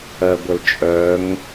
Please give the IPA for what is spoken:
ɜ ɡʷ ə l t͡ʃʼ œ ŋ

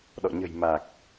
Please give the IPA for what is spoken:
ɗ ɔ̰˧˨ ɲ ə̤˨˩ j m a˨˩ k̚

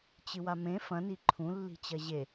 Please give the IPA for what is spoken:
t͡ɕ ɨ w a m ẽ f ɐ̃ n i ǃʰ ũ lː i̤ t͡ɕ ɐ ʑ e

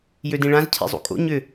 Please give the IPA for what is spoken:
j ø d ĩ ɭ ã z cʰ ḛ zˤ ṵ kʼ o̰ ɲ ʏ

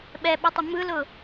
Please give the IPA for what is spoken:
ɓ ɛ ɓ ɵ tˤ ə m ɯ l ʊ

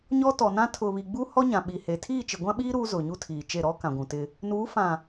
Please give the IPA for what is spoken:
ɲ ɔ˦ t ɔ˨ n ã˦ tʰ ʊ˨ β i˨ ɡ͡b u˦ h ɔ˦ ɲ ã˨ ɓ i˨ h e˨ tʰ iː˦˨ t͡ʃ ɪ˨ ɡʷ ã˦ ɓ iː˦ ɾ uː˦ z ʊ˨ ɲ u˦ tʰ iː˨ t͡ʃ e˦˨ ɾ ɔ˦ k ã˨ ɡʷ ũ˨ t ɪ˦ | n uː˨˦ f ã˨

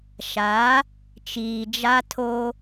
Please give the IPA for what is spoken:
ʃ a˨˦ | t͡ʃ iː˨ d͡ʒ a˦ tʰ o˦

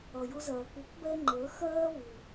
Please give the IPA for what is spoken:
ʌ˧ j ʊ˥ z ɜː˧ k u˧˥ k b ɛ˥ ŋ͡ǃ əː˧˥ x ɜː˥ β u˧

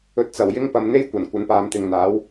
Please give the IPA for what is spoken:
ɵ˨ t̚ t͡s ɐ˨˩ w j ɪ˥ ŋ p ɐ˨ m n̪ e˥ j kʷ ɐ˨˩ n kʷ ɐ˨˥ n p aː˨˧ m t̪ ɪ˨ ŋ n̪ aː˨˥ w

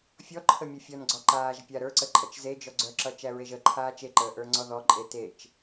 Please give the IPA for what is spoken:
fʲ ɔ ǃʰ ə mʲ œ fʲ ɔ n ɡ͡ǀ ɔ ǃ aː ʒ pʲ a ɾ ə˞ ǀ ə ǃʼ ʌ t͡ʃ z e d͡ʒ ɔ ɡ͡ǀ œ ǁ ʌ t͡ʃ æ ɹ e ʒ ə ǃʰ aː t͡ʃ e ǃ əː ʔ ə˞ ŋ͡ǀ ɔ ð ɔ ǃʼ e t e t͡ʃ

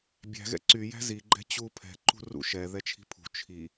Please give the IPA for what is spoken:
bʲ æ̤ ɣ ɛ̰ ǀ y j æ̤ z i ɡ͡ǃ ɛ̤ t͡ɕ u pʰ ɛ̤ ǃ ṳ r ṵ ʃ ɛ ð ɛ t͡ʃʰ i̤ pʰ ṳ t͡ʃʰ i

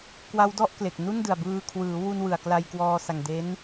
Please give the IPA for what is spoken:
k w a˦˥ w d ɔ˥˩ ʔ k l e˨˩ k̚ n u˥˩ n d ɯ˨˩ a̯ b ɯː˧ kʰ w ɯː˩˦ w u˧ n w ɯ˨˩ a̯ k l a˧ j k w ɔː˧ s a˨˩ ŋ d e˦˥ n

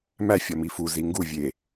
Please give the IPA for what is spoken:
m æ fʲ ɒ m i f u z i ŋ ɡ u vʲ e

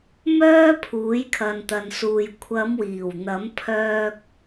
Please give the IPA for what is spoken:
m œː˥ pʰ uː˨˥ j kʰ ɐ˨ n t̪ ɐ˨ n s uː˨ j kʷʰ ɐ˨˧ m w iː˨˩ w n̪ ɐ˨˥ m pʰ œː˧ k̚

